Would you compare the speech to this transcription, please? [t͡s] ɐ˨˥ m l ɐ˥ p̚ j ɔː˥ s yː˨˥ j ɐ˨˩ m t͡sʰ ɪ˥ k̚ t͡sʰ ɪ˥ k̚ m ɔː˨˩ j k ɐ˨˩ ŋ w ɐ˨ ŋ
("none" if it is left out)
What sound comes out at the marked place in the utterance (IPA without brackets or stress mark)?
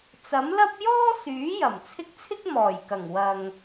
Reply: t͡s